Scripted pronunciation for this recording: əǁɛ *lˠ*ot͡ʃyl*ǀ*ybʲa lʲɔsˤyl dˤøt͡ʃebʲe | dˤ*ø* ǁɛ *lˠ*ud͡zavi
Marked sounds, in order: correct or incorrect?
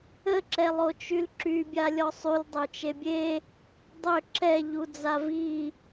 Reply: correct, incorrect: ǁ, correct, incorrect: ʎ

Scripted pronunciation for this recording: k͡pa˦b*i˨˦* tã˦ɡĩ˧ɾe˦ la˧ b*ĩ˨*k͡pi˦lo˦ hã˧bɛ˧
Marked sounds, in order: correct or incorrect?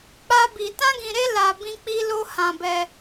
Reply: incorrect: i˧, incorrect: ĩ˦

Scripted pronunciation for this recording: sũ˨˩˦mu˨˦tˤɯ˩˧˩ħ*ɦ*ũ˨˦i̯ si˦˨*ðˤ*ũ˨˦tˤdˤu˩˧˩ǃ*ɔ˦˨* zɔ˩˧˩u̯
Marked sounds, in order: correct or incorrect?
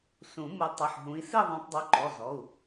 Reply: correct, correct, incorrect: ɔ˩˧˩

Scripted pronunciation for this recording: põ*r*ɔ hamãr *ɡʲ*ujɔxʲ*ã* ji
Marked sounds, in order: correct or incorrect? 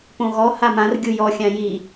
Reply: incorrect: ɣ, correct, correct

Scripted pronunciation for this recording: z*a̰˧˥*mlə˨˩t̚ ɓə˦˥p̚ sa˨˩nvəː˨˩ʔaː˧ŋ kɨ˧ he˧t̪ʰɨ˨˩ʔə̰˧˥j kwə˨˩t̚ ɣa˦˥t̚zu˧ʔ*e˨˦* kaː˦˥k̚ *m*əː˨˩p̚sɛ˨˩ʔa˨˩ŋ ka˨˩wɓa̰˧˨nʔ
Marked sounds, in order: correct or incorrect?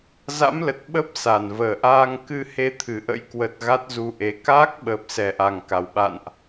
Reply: correct, correct, incorrect: ɓ

